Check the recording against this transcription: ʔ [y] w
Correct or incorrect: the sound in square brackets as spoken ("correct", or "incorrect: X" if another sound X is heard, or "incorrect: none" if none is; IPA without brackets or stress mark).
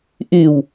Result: correct